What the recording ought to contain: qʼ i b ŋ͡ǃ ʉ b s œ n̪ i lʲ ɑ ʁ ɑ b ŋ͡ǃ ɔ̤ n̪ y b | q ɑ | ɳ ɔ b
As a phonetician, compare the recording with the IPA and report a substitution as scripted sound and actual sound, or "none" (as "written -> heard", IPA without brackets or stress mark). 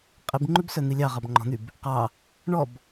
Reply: none